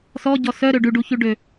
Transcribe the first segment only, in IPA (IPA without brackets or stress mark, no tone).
s